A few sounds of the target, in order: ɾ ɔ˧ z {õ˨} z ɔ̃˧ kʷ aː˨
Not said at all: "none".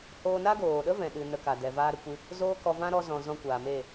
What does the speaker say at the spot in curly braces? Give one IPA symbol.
ɔ̃˨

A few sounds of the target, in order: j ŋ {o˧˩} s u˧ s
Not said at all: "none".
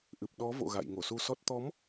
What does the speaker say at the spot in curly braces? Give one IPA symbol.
o˧˩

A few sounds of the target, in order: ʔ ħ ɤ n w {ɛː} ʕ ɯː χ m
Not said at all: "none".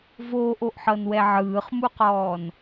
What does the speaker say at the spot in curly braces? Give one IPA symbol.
ɛ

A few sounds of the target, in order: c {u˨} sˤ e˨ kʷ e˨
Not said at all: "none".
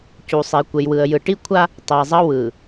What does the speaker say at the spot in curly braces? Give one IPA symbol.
u˨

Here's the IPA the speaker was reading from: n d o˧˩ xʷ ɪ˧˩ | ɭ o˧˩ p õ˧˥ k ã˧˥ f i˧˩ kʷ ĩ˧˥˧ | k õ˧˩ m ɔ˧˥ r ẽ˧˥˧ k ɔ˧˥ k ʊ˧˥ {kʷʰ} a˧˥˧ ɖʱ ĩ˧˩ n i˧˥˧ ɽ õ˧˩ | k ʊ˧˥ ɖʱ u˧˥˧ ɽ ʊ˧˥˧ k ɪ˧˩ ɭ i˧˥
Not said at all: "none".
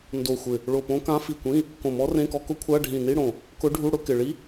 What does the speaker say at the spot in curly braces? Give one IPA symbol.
kʷʰ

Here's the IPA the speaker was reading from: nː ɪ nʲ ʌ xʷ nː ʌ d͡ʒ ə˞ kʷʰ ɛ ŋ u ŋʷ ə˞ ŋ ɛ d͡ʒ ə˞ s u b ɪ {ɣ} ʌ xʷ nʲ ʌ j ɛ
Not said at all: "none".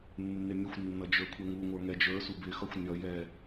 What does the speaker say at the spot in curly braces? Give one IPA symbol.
x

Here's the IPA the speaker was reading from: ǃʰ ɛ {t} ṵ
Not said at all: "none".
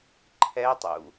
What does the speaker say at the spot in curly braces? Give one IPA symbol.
tˤ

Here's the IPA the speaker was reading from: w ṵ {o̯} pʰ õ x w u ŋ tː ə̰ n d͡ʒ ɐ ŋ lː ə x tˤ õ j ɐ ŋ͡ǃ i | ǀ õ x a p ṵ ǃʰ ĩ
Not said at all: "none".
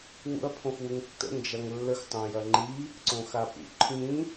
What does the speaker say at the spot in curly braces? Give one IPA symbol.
ɐ̯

